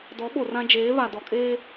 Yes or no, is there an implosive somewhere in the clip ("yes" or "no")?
yes